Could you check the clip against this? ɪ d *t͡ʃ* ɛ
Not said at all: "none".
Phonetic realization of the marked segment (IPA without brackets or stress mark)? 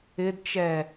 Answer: t͡ʃ